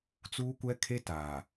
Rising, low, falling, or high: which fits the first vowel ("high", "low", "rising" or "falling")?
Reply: high